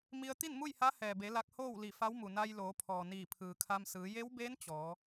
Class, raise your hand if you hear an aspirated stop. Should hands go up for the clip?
yes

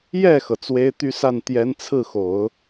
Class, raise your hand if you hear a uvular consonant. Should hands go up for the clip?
no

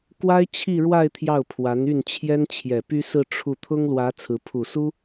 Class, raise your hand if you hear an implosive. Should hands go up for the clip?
no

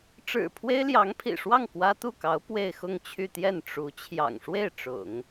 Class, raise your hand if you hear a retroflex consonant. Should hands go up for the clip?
yes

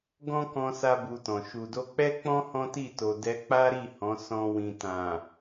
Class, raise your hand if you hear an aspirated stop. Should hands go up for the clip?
no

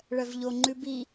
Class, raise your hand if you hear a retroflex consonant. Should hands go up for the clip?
yes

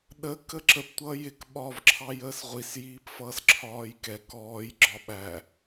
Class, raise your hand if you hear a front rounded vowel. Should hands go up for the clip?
no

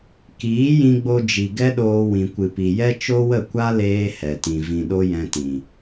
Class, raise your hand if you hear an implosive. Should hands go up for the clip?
yes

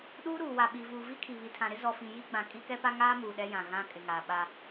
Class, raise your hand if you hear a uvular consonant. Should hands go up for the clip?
no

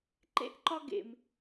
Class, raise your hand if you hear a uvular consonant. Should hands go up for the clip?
no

